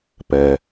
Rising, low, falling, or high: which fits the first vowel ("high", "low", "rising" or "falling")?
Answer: low